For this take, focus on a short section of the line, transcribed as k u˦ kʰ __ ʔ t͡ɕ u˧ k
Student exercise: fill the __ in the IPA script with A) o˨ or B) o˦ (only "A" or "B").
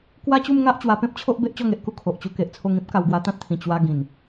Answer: A